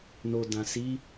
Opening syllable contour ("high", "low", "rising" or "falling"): low